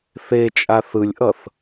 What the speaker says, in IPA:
θ e t͡ʃʼ a θ ɯ lʲ ʔ ʌ θ

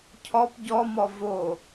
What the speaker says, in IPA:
cʰ ɔ p ɟ ɔ m ɔ v o

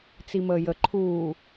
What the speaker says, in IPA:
t͡s i m əː j ə ǃʰ uː

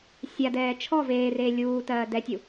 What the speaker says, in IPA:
sʲ a d ɛː t͡ʃʰ ɔ v eː r eː lʲ uː t ɜː d ɛ tʲ u

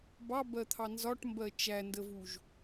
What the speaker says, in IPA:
b ɑ b ɜ t̪ʰ ɑ n z ɒ ʈ m b ɜ t͡ʃ æ n d ə v u ʒ

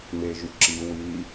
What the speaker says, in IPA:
m e ʒ y ǁ i w i

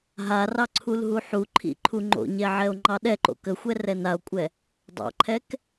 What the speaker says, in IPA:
ɦ a r ɑ ǀʰ u l ɦ u ħ u ǃʰ ḭ ǃʰ u ŋ͡ǃ o̰ ɲ ɛ ʕ ɛ o̯ ŋ͡ǃ ɑ ɗ ɛ ǃ o̰ k ə xʷ ɛ r ɛ n a o̯ kʷʼ ɛ | dˤ ɑ̰ ǃʰ ɛ k

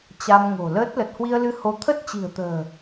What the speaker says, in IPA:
t͡ɕ a˧ m ŋ o̤˨˩ l əː˦˥ t̚ l ə˨˩ t̚ h w i˧ ə̯ l ɨ˧ h o˨˦ t̪ʰ ə˦˥ t̚ t͡ɕ i̤˨˩ ə̯ t̪ ə̤ː˨˩

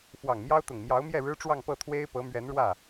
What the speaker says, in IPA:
f w ɑ˨˩ ŋ m j ɑ˥ ʊ̯ t̪ ʊ˨˩ ŋ m j ɑ˧˥ ʊ̯ m j ɛ˥˩ ɻ ɻ̩˥ ʈ͡ʂ w ɑ˥˧ ŋ p ɤ˥˩ t̪ʰ w e˥ ɪ̯ p ɤ˧˥ m ɥ ɛ˧˥ n ɻ w ä˥˩

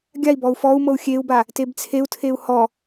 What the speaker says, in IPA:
ɡʲ a i̯ b ɔ u̯ f ɔ u̯ m ɤ u̯ xʲ e u̯ b a | t e b t͡sʰ e u̯ tʰ e u̯ h ɔ

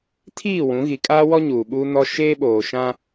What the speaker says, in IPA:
tʰ iː˦˨ w ũ˨˦ ɣ i˨ kʼ aː˦ w ɔ˦ ɲ uː˨ ɓ uː˦ n ɔ˦ ʃ eː˦ ɓ oː˨ ʃ ã˦

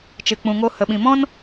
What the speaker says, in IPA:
t͡ʃ ɨ˨ k͡p ũ˨ ŋ o˧ h ə˨ ɓ ĩ˨ m ɔ̃˦ n

